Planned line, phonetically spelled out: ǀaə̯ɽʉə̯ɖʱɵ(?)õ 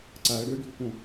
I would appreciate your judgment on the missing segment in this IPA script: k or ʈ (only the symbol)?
k